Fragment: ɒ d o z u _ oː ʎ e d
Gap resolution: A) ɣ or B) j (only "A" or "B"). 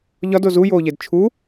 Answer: B